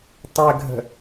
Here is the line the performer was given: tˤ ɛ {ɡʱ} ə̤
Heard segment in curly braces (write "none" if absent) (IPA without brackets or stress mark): ɡʱ